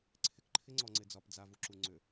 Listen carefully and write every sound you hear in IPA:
ǀʰ ɪ k ǃʰ ɪ ŋ͡ǀ ɔ ŋ͡ǀ ɪ d͡z ɒ p d͡z a v u ǁ u ŋ͡ǀ ʏ

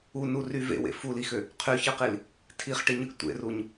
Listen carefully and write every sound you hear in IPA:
u n u r y v ḛ w ḛ f u l i x ø | qʰ y ç ɯ q i l | tʰ i χ ʈ i ɲ ɯ ɡ tʷ ḛ r u ɲ

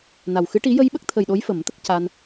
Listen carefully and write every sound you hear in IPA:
n a˨˩ w x ɨ˧˥ ʈ i˧˥ j ə˧ j ɓ ə˦˥ k̚ t̪ʰ ə˨˩ j ɗ o˧˥ j f ə˨˩˦ m t̪ ə˦˥ k̚ c a˧ n

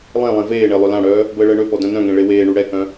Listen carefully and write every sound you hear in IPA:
lˠ ẽ lˠ ẽ v eː ɳ e lˠ ø l ã ɽ œː | b əː ɭ əː ɳ ø p ɔ d œ̃ n œ̃ ŋ ẽ ɭ e w eː ɳ u ɽ ɛ k œ̃

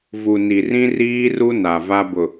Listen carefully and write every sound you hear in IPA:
v u˨ n i˨ r ĩ˦ r iː˦ r u˦ n a˨ v a˦ b ʊ˨

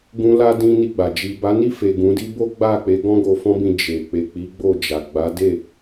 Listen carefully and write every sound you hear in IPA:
ɡ ũ˧ l a˧ d ĩ˦ n i˦˨ ɡ͡b a˨ d͡ʒ i˨ b a˨˦ n i˦˨ f e˨ ɡ ũ˨˦ d i˦ b o˦ ɡ͡b a˦˨ k͡p e˨˦ ɡ ɔ̃˦ ɡ o˧ f ɔ̃˦ b ĩ˧ d͡ʒ e˨ k͡p e˨ k͡p i˨˦ ɡ͡b o˦˨ d͡ʒ a˨ ɡ͡b a˨˦ d e˦˨

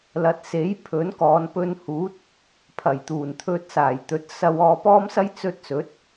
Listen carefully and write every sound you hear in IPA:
l ɐ˨˥ t̚ s e˨˥ j pʰ ɵ˨˥ n k ɔː˨˧ n p ɵ˧ n h uː˨˥ t̚ | pʰ ɐ˨˩ j t̪ uː˨˩ n t̪ʰ ɵ˧ t̚ s aː˨˩ j t̪ ɵ˨˥ t̚ s ɐ˧ w ɔː˧ p ɔː˥ m s ɐ˥ j t͡s ɵ˧ t̚ s ɵ˨˥ t̚

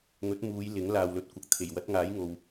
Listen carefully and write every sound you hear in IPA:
ŋ ɵ˨˥ t̚ m uː˨˧ j l ɪ˨˥ ŋ l aː˨ w l ɵ˨˥ t̚ kʷ ɐ˨ k̚ t̪ʰ e˨˩ j w ɐ˨˥ t̚ ŋ aː˨˥ j ŋ o˨ w

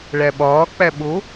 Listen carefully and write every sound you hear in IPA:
ɭ æ ɓ ɒː k͡p æ ɓ o

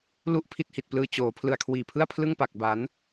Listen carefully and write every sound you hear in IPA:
l u˦˥ ʔ pʰ i˦˥ t̚ h i˨˩ t̚ p l ɯː˧ t͡ɕ oː˩˦ pʰ l ɯ˨˩ a̯ kʰ w iː˨˩ pʰ ɯ˥˩ a̯ pʰ l ɯ˥˩ ŋ p a˨˩ k̚ b a˩˦ n

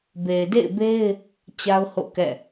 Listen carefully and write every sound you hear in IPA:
b e˨ ɪ̯ d ḛ˦˨ ɪ̯ b e˦ ɪ̯ | t͡ɕ a˦ ʊ̯ h o̰˦˨ k ɛ̰˦˨

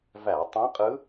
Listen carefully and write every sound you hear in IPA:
v æ˧˩˧ tˤ ẽ˧˥ qʼ ɯ˧˥

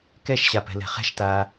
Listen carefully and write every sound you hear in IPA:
k ɛ ʃ ɕ a p ɛ̤ l ɛ̤ χ ɛ̤ ʃ t aː

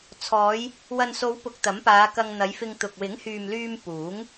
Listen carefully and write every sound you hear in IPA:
t͡sʰ ɔː˨˧ j | w ɐ˨ n s o˨˧ w p ʊ˧ k̚ t̪ ɐ˨˥ m p aː˨˧ k ɐ˧ ŋ n̪ ɐ˨˧ j f ɪ˧ ŋ t̪ ʊ˨ k̚ w ɪ˨˥ ŋ h yː˨ m l yː˧ m p uː˨˥ ŋ

